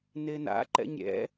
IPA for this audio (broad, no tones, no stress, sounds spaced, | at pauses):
n e n a̰ ǃ ɛ̰ ɲ ɾʲ ɛ̰